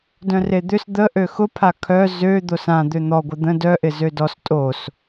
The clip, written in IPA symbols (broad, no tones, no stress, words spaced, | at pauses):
dœ̃red̪ʏs d̪ə ʔøxʊpʰa kʰœ zø d̪osã d̪øn̪ɔɡʷɪ d̪ə̃ dœʔɪ zødɔs tʼos